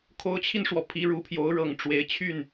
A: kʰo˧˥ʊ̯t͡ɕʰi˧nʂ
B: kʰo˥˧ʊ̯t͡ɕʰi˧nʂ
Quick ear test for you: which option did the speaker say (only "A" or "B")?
A